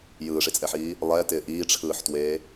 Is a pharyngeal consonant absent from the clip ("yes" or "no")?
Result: no